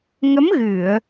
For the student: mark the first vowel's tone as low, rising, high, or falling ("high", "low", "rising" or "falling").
rising